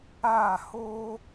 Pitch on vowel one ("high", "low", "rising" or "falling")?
falling